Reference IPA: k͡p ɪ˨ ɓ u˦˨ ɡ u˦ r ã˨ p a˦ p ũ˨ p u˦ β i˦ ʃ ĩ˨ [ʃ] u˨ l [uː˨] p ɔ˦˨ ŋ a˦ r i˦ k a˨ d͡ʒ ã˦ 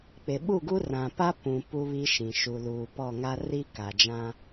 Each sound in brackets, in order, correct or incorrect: correct, correct

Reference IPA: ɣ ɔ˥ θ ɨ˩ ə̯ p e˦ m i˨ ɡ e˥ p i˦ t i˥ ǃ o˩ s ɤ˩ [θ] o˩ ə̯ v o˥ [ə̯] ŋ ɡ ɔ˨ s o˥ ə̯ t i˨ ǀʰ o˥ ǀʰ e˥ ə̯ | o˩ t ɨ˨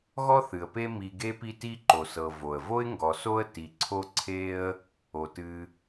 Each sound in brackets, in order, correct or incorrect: incorrect, incorrect

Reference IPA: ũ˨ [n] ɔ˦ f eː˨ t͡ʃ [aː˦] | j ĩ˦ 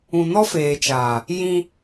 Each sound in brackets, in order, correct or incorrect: correct, incorrect

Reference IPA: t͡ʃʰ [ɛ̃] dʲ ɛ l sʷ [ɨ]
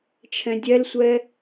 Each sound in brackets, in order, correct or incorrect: correct, incorrect

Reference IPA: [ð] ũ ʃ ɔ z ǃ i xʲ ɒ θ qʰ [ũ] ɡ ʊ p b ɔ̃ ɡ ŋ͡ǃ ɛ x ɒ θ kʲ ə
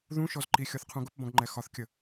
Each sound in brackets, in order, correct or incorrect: correct, correct

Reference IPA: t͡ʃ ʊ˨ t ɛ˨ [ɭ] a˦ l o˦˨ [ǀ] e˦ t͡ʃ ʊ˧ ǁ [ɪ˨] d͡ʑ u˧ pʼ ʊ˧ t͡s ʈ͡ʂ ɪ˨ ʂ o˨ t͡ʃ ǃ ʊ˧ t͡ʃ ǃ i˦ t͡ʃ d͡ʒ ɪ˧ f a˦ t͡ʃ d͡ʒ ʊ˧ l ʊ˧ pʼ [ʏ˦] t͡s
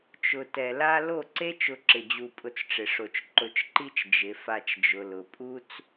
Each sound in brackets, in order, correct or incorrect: incorrect, correct, correct, incorrect

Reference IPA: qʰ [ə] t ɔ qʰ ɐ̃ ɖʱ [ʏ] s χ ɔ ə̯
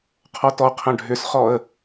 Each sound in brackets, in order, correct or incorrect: incorrect, correct

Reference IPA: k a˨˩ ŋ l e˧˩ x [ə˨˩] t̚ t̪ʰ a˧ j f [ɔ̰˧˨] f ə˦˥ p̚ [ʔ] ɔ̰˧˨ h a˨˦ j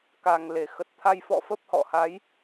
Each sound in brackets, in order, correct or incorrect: correct, correct, incorrect

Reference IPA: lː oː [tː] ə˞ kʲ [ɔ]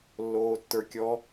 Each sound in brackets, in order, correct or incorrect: correct, correct

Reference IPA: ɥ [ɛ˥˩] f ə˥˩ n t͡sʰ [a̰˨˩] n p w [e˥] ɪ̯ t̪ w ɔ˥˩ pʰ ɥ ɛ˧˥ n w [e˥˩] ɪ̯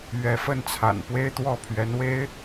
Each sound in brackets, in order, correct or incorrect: incorrect, correct, correct, incorrect

